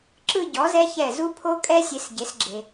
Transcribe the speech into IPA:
ǁ ɯ˥˧ ɟ ɔ˩˥ z ɛ˦˥ ç ɛ˧˩ z u˦˥ pʰ o˦˥ kʼ ɛ˦˥ sʲ e˩˧ s ɟ e˩˧ s ɡ͡ǁ e˩

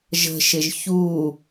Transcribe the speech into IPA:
ʒ ə̤ ʃ ɪ ʒ ç u

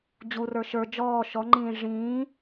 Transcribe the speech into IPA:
d͡ʑ u r ə˞ ʃ ə˞ d͡ʒ ɔː ʃ ɔ ŋ͡ǃ ĩː ʐ ĩː

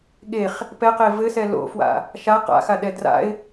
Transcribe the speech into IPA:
ɠ e χ | p ɛ q e v ɘ s ɛ l o̰ f w a̰ | ʃ a q a̰ x a ɗ ɛ d r a̰ ɪ̯

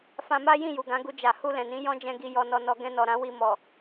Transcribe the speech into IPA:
f ã˧ m a˦ j ĩ˦˨ j u˨ ɡ ã˨˦ ɡ u˧ d͡ʒ a˨ h u˧ l ɛ̃˨ n ĩ˨˦ j ɔ̃˦ d͡ʒ ɛ̃˧ ɡ i˧ j ɔ˧ n ɔ˧ n ɔ˧ ɡ ɛ̃˦ n ɔ˧ ɾ ã˦ w i˧ m ɔ˨

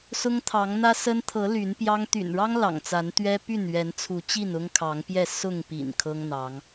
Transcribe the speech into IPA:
s ʊ˦ ŋ t̪ʰ ɑ˨˦ ŋ n̪ ä˦ s ə˦ n t̪ʰ ɤ˨˦ l y˨˦ n p j ɑ˦ ŋ t̪ y̰˨˩ n ɻ ɑ˦ ŋ l ɑ̰˨˩ ŋ t͡s a˨˦ n t̪ ɥ ɛ˦ p y˥˨ n ɥ ɛ˨˦ n t͡sʰ u˨˦ t͡ɕ i˥˨ n ʊ˦ ŋ kʰ ɑ˨˦ ŋ p j ɛ˥˨ s ʊ˥˨ ŋ p ḭ˨˩ n kʰ ɤ˦ ŋ n̪ ɑ˨˦ ŋ

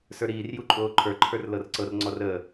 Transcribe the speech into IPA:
s ə˞ ɾ iː r j u ǃʼ oː ǃʰ ə˞ ǃʰ ə˞ r l ɤ r ǀ ɤ r ŋ͡ǀ ɔ r əː

